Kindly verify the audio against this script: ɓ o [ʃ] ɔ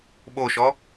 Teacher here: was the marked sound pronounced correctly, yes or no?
yes